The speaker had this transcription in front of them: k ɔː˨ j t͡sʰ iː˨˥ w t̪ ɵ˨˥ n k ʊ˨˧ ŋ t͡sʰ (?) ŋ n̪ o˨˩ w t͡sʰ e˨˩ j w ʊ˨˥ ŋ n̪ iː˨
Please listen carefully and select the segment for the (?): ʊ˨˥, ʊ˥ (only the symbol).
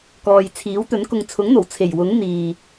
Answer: ʊ˨˥